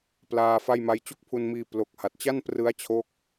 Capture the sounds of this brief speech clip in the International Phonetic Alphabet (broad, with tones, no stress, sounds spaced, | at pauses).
p l aː˧ f a˥˩ j m a˦˥ j t͡ɕ u˥˩ k̚ pʰ u˧ n m iː˧ p l o˨˩ k̚ h a˨˩ t̚ t͡ɕ a˥˩ n p r ɯ˦˥ a̯ t͡ɕʰ o˦˥ k̚